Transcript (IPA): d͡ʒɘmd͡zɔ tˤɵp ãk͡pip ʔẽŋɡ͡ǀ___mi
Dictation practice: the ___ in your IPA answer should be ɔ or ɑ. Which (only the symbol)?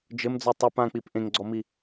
ɔ